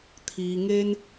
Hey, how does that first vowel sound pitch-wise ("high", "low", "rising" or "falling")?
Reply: low